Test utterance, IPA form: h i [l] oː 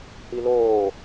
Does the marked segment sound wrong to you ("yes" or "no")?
no